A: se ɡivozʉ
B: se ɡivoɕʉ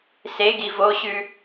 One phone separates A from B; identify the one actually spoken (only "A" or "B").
B